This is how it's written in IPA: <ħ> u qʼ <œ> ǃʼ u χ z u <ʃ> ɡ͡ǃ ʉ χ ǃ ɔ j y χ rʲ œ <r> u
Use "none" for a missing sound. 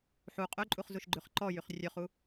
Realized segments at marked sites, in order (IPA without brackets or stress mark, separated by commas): ħ, ɵ, ʃ, χ